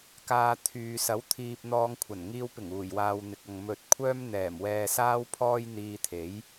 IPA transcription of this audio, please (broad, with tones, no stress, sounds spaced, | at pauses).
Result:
k aː˧ t̪ʰ yː˨ s ɐ˨˥ w t̪ʰ iː˧ p̚ n̪ ɔː˧ ŋ kʷʰ ɐ˨˩ n ŋ iː˧ w p ɪ˨˩ ŋ uː˨˩ j w aː˨ w n̪ ɪ˨ k̚ ɐ˨ ŋ m ɵ˨ t̚ kʷʰ œː˥ m n̪ ɛː˨˩ m w ɛː˧ s aː˥ w pʰ ɔː˥ j n̪ iː˧ t̪ʰ e˨˥ j